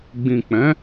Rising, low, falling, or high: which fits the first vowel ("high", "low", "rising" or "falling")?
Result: low